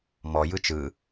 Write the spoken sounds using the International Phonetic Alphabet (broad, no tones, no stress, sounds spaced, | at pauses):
m ɔ j ɯ t͡ʃ ɯ